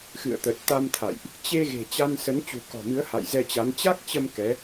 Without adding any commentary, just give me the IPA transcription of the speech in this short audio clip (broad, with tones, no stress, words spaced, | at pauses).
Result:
xɨ̰˧˨ə̯t̪ə˨˩t̚t̪a˧mt̪ʰa̰˧˨jʔ | t͡ɕe˧ ɣe̤˨˩t͡ɕa˧nsə˨˦n t͡ɕṳ˨˩kɔ̤˨˩mɨ˨˦ə̯ ha̰˧˨jzɛ˧t͡ɕa˨˦n t͡ɕa˦˥k̚t͡ɕə˧m kɛ˨˦